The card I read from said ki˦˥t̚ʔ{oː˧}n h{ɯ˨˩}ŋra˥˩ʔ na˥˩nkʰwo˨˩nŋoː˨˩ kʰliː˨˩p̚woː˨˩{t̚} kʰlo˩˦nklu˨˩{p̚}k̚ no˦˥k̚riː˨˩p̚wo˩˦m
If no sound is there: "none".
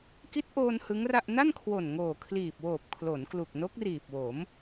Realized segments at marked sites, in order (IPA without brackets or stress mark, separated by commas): oː˧, ɯ˦˥, p̚, none